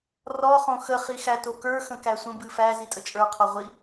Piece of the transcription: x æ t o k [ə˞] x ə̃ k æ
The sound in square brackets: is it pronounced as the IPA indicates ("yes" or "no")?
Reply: yes